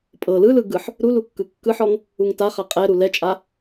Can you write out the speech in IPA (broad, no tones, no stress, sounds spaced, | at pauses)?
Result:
pʼ ɤ l ɯ l ɯ ɡ ɯ ħ | ɾ u l u kː ɯ kː ɯ ħ ɔ ŋ | u ŋ t a χ a qʼ ɛ ɾ u l ɛ t͡ʃʼ a